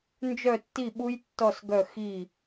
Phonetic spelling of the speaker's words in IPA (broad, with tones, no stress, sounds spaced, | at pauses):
n d͡ʒ œ˦˨ tː i˦˨ ɓ u˦˥ j tː ɔ˦˨ s ɡ œ˦˨ x i˦˨